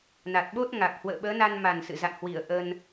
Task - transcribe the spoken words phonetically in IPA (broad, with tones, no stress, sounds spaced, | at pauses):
n a˨˩ t̚ ɓ o˦˥ t̚ ŋ a˨˩ k̚ h w ə̰ː˧˨ ɓ əː˨˦ n a˧ n m a˨˩ n s ɨ̰˧˨ z a̰˧˨ n h w i˧˩ ə̯ ʔ ə˧ n